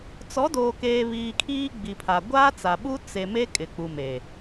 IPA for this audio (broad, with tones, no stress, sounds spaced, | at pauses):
t͡s ɔ˨˦ d oː˨ k eː˨ β iː˨ kʰ iː˦ ɡ͡b i˨ pʰ a˨ ɡʷ aː˦ t͡s a˨ ɓ u˦ t͡s e˨ m e˦ kʼ ɪ˨ k͡p u˨ m eː˨